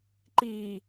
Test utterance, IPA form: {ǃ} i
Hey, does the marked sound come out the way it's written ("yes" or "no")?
yes